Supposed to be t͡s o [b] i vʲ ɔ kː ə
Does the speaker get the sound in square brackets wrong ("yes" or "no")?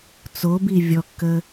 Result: no